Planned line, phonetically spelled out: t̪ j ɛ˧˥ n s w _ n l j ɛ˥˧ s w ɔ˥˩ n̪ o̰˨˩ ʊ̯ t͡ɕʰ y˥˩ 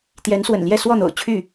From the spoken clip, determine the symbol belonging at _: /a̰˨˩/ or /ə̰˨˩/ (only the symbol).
ə̰˨˩